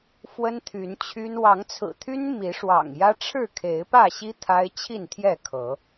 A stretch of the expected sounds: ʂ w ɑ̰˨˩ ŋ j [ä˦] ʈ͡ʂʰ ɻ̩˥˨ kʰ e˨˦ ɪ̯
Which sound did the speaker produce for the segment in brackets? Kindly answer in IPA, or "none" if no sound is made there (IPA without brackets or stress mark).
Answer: ä˦